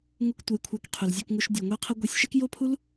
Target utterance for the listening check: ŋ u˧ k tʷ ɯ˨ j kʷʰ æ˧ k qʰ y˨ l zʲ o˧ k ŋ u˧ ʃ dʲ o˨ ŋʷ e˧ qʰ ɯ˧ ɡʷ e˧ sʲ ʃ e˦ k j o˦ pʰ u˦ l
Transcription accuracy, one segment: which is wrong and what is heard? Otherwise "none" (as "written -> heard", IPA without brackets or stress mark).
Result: none